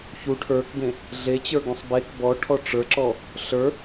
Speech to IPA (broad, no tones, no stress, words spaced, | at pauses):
çu ʈʰə˞kɡẽ | ɮet͡ɕə˞ɡũsˤ bek bɔʈʰɔ ʈ͡ʂə˞ǁɔ | ɬə˞